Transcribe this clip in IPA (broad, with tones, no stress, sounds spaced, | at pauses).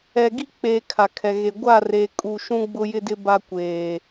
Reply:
ɛ˨ ɡ i˦ k͡p eː˨ kʰ a˨ kʰ ɛ˨ ɣ e˨ ɡʷ a˦˨ r e˨ kʼ u˨ ʃ ũ˦ ɡ͡b ʊ˦ j ɪ˦ d ɪ˦ b a˦ kʷ eː˨